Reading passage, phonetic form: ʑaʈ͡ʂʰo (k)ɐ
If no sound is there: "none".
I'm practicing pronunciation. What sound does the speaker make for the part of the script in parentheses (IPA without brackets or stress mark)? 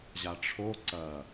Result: ǀ